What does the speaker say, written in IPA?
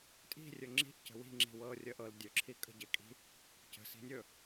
tʼ i̤ rʲ ɵ ŋ͡ǁ i̤ ʔ c ə̤ w i̤ ŋ͡ǁ i̤ w ɤː rʲ əː ʔ ɤ l dʲ ɵ ǁʰ i kʼ ə̤ ɟ e kʼ i̤ | c ə̤ s i̤ nʲ ɵ

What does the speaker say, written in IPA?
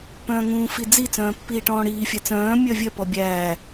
p œ̃ː ŋ ũː f i d͡z i t͡s œ̃ː pː iː ʈ ɔ̃ː ɽ iː fʲ æ t͡s œ̃ː mʲ œ vʲ œ p ɔ bʲ æː

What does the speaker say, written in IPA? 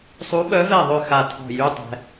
sˤ u˧˥ ɓ œ˧˥ v ɛ˦˨ ðˤ ø˦˨ x a˦˨ tʰ ɔ̤˦˨ j y˧˥˧ tˤ ɛ̤˨

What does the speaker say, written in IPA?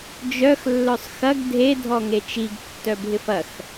d͡ʒ œ x lː œ sˤ x ɐ ɡ dʱ e dʱ ɔ ŋ e t͡ʃ i ɡ tː œ bʱ ɪ f ɐ x

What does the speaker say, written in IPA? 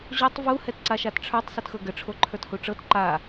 ʑ o tˤ v u h ɛ t ǀ a ʃ a t ʈ͡ʂʰ ə˞ tˤ s ɤ t x ɤ ɡ ə ʈ͡ʂʰ o ǃʰ ə˞ t h u ʈ͡ʂ ɤ t ǃ a

